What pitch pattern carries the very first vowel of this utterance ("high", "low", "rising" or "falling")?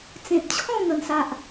low